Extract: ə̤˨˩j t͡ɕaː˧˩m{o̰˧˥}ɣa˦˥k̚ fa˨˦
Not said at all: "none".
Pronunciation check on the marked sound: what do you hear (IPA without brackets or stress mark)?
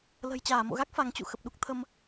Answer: o̰˧˨